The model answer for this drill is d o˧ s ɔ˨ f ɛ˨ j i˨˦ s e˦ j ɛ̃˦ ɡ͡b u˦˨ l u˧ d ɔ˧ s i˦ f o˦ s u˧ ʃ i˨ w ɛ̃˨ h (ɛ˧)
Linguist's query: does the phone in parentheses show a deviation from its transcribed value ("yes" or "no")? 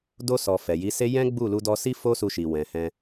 yes